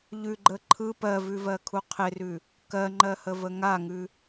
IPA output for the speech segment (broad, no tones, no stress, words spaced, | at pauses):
ʎʉɡ͡ǃə ǃʰɯ pɜvʉvɜkʰu qʰɪrʉ | kɜŋ͡ǃɜhəvə ŋaŋʉ